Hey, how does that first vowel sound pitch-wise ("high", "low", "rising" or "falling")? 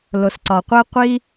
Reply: low